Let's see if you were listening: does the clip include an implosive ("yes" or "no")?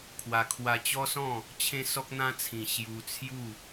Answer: no